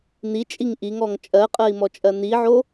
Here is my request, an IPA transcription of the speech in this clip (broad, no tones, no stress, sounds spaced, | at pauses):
n̪ i t͡ʃʼ i ŋ ʔ i ŋ ɔ ŋ t͡ʃʼ ɜ qʼ ɜ i̯ m ɔ t͡ʃʼ ɜ n̪ i ʕ o